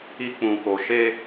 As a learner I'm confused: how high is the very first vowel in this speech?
high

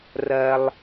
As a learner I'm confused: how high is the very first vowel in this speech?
low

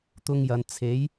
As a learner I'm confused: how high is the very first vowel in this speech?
high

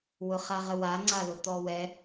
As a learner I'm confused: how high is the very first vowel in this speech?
high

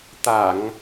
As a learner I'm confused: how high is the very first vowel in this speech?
low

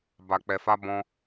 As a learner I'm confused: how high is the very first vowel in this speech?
low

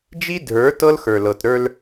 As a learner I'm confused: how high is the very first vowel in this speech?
high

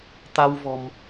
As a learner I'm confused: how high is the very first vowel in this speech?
low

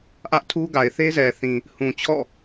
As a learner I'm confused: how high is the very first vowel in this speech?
low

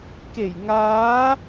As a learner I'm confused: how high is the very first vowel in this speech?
mid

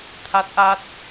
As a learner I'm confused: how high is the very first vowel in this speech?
low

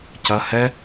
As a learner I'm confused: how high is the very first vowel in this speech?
low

